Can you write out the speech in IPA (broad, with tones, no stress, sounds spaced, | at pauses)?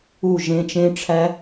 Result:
u˥˧ ʒ ẽ˦˥ t͡ʃ ẽ˦˥ ʈ͡ʂʰ æ˦˥